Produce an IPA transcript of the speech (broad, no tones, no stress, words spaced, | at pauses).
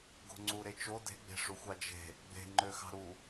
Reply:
ɡo̤ŋ͡ǀuɾet͡ʃo de̤ɡ͡be̤ʂuxʷɑ d͡ʒe̤ | ɡ͡be̤ ŋ͡ǃøxɑ̤ɾu